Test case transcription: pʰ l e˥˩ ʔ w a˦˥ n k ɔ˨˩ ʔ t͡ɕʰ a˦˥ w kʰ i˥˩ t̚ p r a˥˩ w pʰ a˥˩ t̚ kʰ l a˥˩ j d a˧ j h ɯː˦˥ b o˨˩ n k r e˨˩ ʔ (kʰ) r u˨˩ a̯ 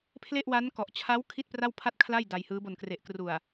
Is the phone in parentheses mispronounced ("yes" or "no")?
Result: yes